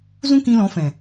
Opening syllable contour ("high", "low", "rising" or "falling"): high